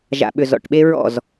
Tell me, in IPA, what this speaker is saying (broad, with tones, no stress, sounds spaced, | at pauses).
ʒ a̰˨ ɓ ʏ˨ z ɔ̰˨ ʈ ɓ e˦ ɹ ɔ̰˦˨ z